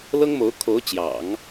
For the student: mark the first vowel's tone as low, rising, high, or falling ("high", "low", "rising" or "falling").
high